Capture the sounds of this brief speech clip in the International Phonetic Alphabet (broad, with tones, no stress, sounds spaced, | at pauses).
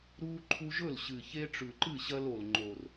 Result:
ɾ uː˦ ǃʰ u˦ ʒ ɵ˥˩ l ɕ ɨ˨˩ ç e˦ ʈ͡ʂ ʉ˨˩ ǃ ɨ˥˩ ɕ ɐ˦ l o˨˩ l ŋ͡ǃ o˨˩ r